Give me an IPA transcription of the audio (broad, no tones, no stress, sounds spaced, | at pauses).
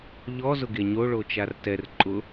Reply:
ʎ ɔ z ʊ ɡ e ɲ o ɭ o t͡ʃ a r t ɛ r ǃʼ ʊ